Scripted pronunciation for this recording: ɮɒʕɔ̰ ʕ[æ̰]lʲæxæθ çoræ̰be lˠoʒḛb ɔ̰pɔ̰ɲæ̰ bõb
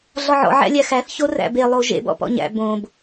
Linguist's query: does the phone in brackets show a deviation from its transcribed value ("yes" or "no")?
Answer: no